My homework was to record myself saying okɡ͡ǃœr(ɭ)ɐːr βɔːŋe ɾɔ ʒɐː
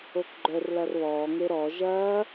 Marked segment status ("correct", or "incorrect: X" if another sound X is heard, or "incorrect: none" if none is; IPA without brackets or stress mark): incorrect: l